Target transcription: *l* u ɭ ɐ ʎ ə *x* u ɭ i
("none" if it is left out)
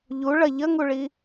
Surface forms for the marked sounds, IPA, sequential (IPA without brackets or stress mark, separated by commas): ʎ, ŋ